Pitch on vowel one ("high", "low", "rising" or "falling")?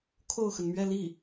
falling